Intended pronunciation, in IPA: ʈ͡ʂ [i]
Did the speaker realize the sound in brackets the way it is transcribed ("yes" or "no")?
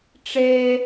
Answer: no